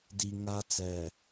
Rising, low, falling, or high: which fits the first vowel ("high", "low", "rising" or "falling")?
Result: low